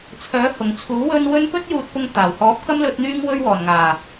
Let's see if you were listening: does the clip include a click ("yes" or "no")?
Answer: no